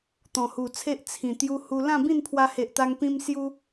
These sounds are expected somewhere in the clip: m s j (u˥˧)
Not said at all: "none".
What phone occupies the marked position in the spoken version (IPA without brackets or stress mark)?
u˦